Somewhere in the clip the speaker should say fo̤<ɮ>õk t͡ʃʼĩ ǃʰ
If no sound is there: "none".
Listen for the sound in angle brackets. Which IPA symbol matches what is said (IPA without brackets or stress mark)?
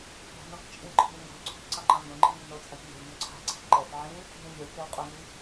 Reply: n